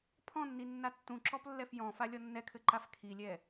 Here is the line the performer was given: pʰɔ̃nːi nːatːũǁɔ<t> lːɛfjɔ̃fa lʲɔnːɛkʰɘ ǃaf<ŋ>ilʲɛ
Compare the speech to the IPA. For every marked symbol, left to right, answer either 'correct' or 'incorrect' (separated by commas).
incorrect, incorrect